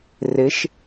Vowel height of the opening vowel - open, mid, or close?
close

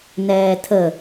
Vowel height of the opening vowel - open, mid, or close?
mid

